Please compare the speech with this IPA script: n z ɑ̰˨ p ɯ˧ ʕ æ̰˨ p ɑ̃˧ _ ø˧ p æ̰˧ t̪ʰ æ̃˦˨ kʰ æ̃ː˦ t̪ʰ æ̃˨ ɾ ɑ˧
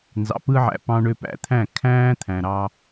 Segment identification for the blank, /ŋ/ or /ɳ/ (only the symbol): ɳ